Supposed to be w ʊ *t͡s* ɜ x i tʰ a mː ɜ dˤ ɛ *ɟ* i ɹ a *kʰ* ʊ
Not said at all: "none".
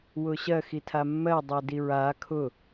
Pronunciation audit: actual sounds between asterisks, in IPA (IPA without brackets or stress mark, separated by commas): ɕ, d, kʰ